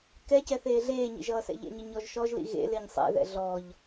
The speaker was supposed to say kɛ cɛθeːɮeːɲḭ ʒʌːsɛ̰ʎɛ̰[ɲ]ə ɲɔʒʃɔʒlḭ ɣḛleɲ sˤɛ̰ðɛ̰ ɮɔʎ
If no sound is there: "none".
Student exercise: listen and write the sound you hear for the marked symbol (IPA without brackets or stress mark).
ɲ